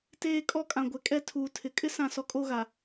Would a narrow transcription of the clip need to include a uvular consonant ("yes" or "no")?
no